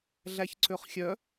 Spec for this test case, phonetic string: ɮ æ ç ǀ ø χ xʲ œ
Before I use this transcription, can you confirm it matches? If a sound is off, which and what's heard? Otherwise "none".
none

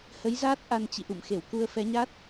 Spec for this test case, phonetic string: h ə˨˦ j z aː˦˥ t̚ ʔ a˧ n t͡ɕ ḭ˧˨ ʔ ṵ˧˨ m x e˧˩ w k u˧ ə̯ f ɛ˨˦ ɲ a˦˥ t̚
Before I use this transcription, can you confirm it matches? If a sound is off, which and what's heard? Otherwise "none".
none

